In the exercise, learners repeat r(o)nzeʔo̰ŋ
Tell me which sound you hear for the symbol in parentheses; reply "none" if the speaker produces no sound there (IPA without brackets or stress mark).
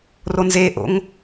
o